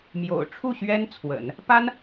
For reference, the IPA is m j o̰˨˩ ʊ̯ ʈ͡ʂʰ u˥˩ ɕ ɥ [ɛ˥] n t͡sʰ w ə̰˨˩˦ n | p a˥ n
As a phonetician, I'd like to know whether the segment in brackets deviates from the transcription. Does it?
no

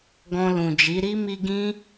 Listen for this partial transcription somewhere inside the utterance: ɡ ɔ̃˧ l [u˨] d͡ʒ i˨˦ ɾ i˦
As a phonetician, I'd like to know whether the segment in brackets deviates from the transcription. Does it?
yes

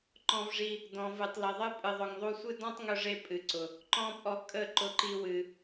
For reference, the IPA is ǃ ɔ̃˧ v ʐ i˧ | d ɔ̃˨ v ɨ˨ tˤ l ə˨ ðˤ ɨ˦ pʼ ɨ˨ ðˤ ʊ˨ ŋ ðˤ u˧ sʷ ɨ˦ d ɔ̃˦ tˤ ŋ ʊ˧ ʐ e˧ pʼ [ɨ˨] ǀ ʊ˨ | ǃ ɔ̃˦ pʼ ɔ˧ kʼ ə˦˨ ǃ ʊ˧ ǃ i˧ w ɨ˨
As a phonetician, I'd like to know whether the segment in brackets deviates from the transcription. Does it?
no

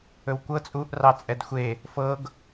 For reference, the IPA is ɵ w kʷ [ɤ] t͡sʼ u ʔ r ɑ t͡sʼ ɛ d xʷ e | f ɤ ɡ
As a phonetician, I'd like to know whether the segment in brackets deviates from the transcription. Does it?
no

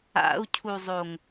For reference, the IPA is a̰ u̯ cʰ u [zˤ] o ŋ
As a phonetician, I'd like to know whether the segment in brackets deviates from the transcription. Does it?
no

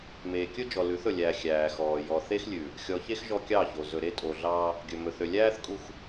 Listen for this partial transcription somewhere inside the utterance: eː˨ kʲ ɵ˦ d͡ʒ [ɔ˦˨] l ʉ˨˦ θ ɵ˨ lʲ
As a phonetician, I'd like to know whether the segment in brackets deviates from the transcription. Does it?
yes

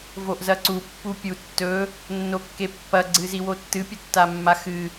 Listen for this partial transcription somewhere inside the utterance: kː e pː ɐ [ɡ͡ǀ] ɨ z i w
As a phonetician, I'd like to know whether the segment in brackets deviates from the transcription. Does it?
no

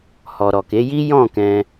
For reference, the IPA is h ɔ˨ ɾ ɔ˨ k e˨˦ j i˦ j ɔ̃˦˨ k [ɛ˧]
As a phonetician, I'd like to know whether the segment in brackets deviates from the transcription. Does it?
yes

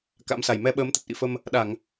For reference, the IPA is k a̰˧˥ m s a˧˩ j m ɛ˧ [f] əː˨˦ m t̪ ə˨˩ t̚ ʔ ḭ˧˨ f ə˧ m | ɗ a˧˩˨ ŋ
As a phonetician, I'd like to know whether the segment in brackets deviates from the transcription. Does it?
yes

